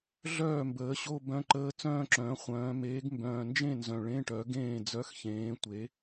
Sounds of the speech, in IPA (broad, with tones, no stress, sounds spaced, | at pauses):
ɮ œː˥˩ m b əː˩˥ ɕ o˧˥˧ b œ̃˧˥˧ ǃ əː˧˥˧ t͡s œ̃ː˥˧ ǁ œ̃ː˩˥ χʷ œ̃ː˩˧ m eː˩˥ ɡ m b œ̃ː˨˩ n d͡ʒ ẽ˥˩ n z œ̃˨˩ ɭ ẽ˧˥˧ ʈ œ˩˥ ɡ ẽː˥˩ d͡z œ˩˥ x ç ẽː˩˧ tʷ e˩˥